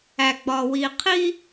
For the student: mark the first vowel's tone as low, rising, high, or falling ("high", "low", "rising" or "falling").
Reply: low